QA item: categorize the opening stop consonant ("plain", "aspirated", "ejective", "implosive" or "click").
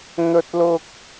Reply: plain